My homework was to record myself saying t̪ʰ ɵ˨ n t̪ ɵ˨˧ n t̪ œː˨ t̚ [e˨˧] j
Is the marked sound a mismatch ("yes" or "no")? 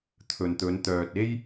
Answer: yes